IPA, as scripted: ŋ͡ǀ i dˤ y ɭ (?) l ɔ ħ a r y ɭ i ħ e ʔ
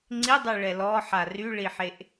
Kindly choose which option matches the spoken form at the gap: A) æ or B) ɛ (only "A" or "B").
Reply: B